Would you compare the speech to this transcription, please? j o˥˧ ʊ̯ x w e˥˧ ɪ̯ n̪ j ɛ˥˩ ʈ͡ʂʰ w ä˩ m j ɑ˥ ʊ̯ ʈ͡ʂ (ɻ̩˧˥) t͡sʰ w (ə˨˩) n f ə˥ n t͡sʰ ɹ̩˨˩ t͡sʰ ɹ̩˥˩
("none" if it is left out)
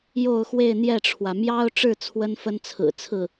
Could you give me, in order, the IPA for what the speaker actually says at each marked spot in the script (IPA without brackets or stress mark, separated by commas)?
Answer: ɻ̩˥˩, ə˥